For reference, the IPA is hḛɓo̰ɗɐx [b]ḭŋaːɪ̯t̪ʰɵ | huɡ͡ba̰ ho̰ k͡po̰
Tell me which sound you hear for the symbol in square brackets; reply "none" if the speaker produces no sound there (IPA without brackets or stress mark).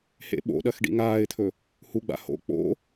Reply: ɖ